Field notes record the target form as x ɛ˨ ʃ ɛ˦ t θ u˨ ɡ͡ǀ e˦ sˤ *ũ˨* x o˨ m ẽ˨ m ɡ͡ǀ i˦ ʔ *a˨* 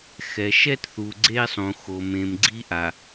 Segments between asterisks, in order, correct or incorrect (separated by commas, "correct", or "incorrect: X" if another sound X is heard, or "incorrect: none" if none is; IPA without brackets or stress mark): correct, correct